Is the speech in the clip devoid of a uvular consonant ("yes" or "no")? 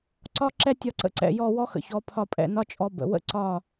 yes